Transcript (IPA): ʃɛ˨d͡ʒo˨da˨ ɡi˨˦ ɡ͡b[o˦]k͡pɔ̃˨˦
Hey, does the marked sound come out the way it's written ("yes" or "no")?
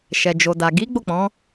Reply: no